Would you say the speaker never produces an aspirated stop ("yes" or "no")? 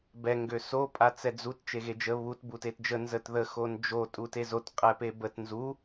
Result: yes